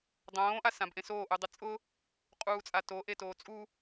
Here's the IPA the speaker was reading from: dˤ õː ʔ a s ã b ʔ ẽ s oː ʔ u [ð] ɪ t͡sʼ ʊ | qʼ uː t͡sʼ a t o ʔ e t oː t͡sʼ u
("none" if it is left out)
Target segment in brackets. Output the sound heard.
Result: dˤ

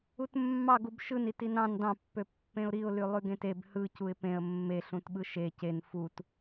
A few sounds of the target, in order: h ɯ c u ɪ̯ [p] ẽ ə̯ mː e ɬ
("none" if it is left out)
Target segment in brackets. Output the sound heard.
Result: p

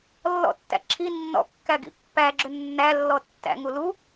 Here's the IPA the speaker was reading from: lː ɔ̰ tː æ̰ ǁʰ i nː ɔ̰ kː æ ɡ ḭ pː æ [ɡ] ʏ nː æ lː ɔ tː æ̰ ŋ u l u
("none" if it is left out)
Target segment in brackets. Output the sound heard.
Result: ɡ͡ǁ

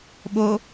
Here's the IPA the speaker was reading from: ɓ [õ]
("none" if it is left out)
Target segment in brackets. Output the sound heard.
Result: o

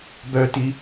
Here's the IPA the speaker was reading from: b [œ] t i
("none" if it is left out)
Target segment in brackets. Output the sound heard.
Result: œ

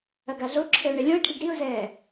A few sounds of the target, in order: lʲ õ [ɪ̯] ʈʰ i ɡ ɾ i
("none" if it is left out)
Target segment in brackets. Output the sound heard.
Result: ɪ̯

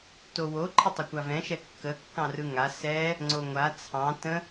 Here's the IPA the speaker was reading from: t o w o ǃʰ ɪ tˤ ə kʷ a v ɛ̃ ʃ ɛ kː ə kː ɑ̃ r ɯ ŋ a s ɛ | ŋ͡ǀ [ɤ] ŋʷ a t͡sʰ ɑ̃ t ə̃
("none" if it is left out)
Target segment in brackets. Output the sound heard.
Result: o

